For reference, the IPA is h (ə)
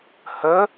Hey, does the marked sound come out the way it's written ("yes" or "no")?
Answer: yes